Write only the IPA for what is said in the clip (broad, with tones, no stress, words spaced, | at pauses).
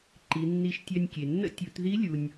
ǃi˩˧nːi˧ʃtʲœ˧nʲkʲe˩ nːə̰˥ tʲu˩˧t ði˧˥lʲu˩nʲ